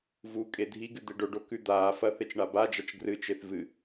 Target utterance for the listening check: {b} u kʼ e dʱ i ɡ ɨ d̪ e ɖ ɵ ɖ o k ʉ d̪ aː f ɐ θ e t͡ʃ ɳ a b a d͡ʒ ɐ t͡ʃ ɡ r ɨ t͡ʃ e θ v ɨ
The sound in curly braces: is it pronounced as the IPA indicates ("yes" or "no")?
no